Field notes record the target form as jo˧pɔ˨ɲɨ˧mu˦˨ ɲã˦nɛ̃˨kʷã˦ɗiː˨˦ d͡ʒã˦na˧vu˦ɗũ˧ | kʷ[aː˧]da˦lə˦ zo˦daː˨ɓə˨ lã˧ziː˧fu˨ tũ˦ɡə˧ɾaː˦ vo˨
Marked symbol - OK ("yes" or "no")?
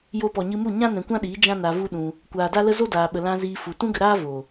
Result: no